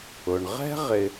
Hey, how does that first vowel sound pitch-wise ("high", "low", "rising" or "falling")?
low